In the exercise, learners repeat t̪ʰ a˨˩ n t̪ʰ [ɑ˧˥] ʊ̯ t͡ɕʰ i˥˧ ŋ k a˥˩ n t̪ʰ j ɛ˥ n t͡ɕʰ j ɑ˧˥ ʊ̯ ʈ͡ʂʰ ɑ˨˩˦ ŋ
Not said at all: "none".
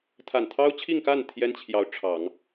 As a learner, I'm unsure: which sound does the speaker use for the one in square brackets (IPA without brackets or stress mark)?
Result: ɑ˥